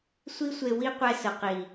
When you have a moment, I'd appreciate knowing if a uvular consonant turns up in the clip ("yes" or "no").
yes